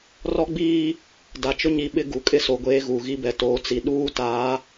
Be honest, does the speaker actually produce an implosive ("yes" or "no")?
yes